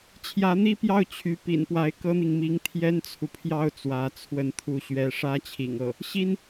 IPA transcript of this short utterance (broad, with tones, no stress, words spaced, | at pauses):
t͡ɕʰjä˧˥n̪i˥pjɑ˥˩ʊ̯ t͡ɕʰy˧˥ pḭ˨˩npwa˧˥ɪ̯ kɤ˥n̪i˨ŋmi˧˥ŋ t̪ʰjɛ˥nt͡sʰu˨pʰjɑ˥ʊ̯ t͡swä˧˥t͡sʰwə˥˧nt̪ʰu˥˩ ɕɥɛ˧˥ʂä˥t͡ɕʰḭ˨˩ŋɤ˥˩ | ɕi˥n